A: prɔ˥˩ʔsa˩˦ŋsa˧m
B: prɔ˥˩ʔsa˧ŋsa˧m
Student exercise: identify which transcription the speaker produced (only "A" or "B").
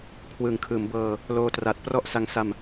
B